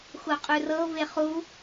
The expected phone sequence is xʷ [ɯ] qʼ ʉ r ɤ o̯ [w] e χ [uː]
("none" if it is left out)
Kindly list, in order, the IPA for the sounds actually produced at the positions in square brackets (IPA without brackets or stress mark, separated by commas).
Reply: ɤ, v, u